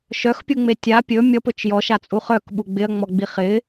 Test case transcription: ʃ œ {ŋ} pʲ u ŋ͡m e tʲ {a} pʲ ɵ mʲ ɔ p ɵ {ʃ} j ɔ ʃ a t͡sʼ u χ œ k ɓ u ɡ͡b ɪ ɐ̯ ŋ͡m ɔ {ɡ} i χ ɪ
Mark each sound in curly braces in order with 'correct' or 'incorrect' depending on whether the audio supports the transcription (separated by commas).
incorrect, correct, incorrect, incorrect